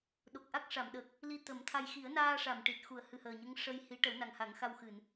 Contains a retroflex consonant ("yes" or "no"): yes